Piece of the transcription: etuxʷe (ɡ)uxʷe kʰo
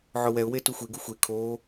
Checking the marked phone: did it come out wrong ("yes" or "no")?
no